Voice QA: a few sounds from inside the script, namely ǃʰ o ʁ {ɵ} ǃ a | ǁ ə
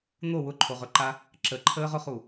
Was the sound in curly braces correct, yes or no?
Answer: yes